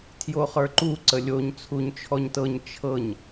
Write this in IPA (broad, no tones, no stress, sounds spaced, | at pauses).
tʰ j o χ ə˞ ǃ u ǀ ə lʲ o ɲ t͡sʰ u ɲ t͡ʃʰ ɔ ɲ t ɤ ɲ t͡ʃʰ ɤ ɲ